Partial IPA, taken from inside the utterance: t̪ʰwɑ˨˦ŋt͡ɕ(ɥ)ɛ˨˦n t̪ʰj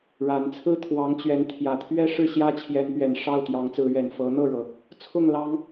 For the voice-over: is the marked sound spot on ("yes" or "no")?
yes